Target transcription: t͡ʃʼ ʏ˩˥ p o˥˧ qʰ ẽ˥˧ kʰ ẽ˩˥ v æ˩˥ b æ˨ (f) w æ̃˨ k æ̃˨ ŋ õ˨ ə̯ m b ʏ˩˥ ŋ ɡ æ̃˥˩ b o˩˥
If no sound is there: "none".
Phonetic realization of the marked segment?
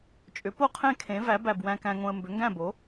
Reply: b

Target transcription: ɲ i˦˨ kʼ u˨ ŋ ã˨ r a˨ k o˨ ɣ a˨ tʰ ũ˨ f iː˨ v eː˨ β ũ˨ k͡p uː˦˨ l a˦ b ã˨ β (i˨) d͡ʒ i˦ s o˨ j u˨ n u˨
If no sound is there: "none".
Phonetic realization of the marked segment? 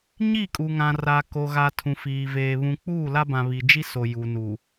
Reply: i˨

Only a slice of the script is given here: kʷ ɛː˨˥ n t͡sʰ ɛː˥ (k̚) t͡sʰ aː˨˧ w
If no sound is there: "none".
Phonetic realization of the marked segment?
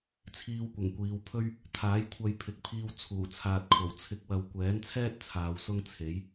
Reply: t̚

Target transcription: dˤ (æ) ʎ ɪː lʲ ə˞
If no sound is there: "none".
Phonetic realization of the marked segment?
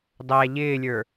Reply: æ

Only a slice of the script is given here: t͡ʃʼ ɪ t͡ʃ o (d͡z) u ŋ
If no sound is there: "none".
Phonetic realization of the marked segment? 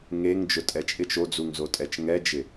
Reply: d͡z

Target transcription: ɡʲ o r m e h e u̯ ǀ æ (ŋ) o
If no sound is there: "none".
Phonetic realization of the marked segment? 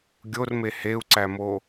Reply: m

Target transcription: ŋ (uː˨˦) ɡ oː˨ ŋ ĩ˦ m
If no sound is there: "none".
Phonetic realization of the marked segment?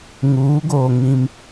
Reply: uː˨˦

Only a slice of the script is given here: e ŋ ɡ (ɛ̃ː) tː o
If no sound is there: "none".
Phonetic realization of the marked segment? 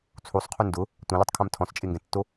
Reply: ɛ̃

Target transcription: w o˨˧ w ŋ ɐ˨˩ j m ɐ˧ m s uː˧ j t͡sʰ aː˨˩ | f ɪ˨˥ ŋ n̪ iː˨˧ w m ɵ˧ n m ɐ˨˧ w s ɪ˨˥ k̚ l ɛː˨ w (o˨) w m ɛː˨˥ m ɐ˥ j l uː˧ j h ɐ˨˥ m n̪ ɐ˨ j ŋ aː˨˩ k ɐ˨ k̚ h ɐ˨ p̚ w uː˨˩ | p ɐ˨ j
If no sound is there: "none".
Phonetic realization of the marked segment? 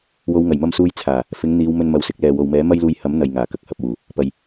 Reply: o˨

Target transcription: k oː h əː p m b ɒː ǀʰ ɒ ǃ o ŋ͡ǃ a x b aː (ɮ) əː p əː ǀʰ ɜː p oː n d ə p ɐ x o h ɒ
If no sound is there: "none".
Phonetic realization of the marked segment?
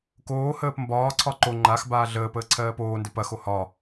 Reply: ɮ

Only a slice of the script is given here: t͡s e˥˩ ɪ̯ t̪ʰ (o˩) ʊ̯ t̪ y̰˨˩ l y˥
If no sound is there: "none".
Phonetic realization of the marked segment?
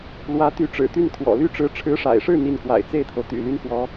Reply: o˩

